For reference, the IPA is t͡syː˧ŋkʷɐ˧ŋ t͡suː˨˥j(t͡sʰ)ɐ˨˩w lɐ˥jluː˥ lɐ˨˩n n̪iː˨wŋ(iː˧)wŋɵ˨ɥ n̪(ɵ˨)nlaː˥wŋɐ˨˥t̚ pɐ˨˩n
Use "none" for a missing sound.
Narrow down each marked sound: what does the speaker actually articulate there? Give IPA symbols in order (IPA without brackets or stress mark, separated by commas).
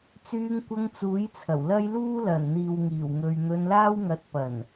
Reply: t͡sʰ, iː˨˩, ɵ˧